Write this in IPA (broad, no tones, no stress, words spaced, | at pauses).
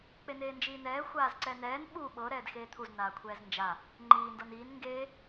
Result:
k͡peneːnd͡ʒiːn̪ɛː xʷaːzǀɛn̪ɛːn ɓu ɓɤ ɾɛːdxeːt̪ʰuz naːkʷʰɛːznd͡ʒa | ŋ͡ǃiː ndɤniːn ŋɡeː